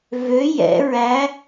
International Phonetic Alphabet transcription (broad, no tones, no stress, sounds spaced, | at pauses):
v ø j ɛ̰ ɹ æ